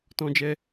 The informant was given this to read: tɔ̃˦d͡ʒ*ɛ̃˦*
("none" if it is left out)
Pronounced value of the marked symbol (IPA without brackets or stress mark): ɛ˦